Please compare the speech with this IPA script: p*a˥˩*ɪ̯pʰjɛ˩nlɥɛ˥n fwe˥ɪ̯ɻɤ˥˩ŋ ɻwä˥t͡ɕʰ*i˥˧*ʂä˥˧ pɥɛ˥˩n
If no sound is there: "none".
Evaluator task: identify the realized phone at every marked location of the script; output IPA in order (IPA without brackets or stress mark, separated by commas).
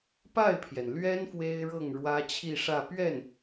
a˥˩, i˥˧